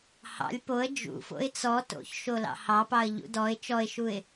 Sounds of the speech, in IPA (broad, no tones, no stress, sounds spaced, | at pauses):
h ɑ̰ lʲ p o ə̯ d͡ʒ ṵ f o̰ ɪ̯ t͡s ɔ t o̰ ç ʃ o l ɑ̰ h ɑ p ɑ ə̯ ʎ ṵ d ɔ ɪ̯ t͡ʃ ɔ ɪ̯ ʃ u ɪ̯